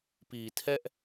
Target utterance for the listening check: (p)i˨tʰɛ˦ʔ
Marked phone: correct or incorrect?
correct